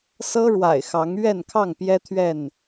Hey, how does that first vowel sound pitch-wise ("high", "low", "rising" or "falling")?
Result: high